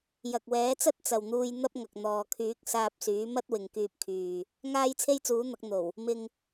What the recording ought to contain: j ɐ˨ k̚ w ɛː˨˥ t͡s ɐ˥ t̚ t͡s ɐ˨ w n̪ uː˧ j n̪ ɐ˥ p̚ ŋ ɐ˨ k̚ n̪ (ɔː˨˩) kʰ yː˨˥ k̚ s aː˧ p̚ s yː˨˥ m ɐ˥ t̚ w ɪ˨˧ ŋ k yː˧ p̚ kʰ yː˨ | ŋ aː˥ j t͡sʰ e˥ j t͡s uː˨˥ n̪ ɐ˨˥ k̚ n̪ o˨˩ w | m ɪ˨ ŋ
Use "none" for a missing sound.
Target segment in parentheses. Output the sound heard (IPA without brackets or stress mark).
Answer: ɔː˨